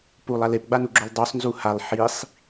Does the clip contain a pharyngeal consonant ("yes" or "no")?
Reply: yes